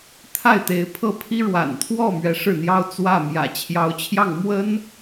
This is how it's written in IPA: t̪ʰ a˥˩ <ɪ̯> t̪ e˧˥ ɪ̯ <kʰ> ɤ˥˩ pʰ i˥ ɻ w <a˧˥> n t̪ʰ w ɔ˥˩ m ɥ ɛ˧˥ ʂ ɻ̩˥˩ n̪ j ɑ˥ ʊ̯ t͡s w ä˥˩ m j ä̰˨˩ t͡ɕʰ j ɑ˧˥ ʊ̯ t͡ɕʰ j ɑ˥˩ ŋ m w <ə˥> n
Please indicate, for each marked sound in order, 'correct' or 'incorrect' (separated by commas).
correct, incorrect, incorrect, correct